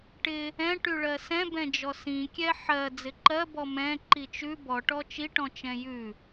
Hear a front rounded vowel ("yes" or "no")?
yes